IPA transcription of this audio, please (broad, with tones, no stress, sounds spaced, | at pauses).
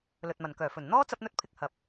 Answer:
l ɵ˨ t̚ m ɐ˨˩ n k œː˨˩ f ɵ˨˩ n n̪ ɔː˥ t͡s ɐ˥ p̚ n̪ ɵ˥ t̚ pʰ ɪ˧ k̚ h ɐ˨ p̚